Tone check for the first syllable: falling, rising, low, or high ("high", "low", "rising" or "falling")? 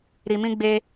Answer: low